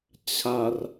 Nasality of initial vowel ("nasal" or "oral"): oral